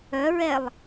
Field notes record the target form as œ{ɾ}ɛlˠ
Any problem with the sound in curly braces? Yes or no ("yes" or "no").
yes